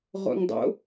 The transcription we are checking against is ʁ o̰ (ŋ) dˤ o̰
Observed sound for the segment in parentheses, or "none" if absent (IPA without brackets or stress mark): ŋ